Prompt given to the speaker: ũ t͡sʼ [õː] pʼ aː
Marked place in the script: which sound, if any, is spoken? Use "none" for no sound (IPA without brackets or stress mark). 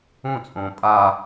õː